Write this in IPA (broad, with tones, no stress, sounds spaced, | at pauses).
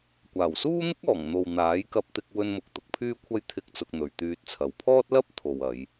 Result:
kʷ aː˨˩ w s uː˥ n̪ ɪ˥ k̚ ɔː˨˩ ŋ n̪ o˨ w n̪ aː˨˥ j k ɐ˧ p̚ t̪ ɪ˧ k̚ w ɵ˧ n m ʊ˨ k̚ t̪ ʊ˧ k̚ pʰ yː˥ kʷʰ ɐ˥ j t̪ʰ ɪ˧ k̚ t͡s ʊ˧ k̚ n̪ ɵ˨ ɥ t̪ yː˧ t̚ t͡sʰ ɐ˨˧ w pʰ ɔː˥ t̚ l ɐ˥ p̚ t̪ʰ o˨ w ɐ˨˧ j